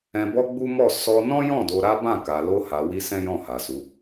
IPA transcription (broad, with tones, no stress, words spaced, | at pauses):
ɛ̃˧bɔ˦ɡ͡bu˦ mɔ˦˨ sɔ˧nɔ̃˦jɔ̃˦˨ do˧ɾa˦bã˦˨ka˨ lo˧ha˨wi˧ sɛ̃˦jɔ̃˦˨ ha˨su˨˦